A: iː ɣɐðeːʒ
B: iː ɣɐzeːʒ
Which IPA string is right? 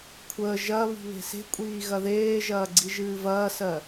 A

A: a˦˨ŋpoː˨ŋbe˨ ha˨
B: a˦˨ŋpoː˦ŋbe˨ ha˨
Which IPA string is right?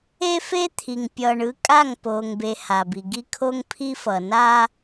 A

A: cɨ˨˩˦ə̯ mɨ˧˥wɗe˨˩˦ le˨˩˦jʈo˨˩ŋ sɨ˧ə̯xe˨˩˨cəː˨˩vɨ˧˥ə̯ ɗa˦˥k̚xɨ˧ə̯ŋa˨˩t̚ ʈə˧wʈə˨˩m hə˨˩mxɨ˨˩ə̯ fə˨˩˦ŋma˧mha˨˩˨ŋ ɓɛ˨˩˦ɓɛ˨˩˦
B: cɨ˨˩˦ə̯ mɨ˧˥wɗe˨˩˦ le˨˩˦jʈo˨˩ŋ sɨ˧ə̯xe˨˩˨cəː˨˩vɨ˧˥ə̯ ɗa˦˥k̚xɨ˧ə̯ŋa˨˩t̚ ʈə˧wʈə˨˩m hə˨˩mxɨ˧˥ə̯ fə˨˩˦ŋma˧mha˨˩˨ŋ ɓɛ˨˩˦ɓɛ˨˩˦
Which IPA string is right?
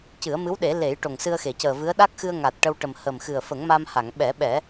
A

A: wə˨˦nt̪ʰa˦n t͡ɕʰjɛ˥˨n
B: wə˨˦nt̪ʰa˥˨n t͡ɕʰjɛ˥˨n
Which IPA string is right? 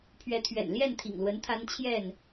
A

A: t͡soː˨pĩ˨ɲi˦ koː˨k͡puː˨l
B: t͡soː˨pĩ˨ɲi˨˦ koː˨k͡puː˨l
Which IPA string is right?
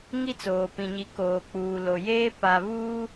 B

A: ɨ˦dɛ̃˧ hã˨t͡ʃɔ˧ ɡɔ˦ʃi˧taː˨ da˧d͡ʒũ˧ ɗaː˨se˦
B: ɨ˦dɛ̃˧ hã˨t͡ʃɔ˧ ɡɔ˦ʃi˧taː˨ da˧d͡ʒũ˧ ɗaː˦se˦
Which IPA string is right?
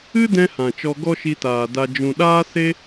B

